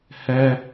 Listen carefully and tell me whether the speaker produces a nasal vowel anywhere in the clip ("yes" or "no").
no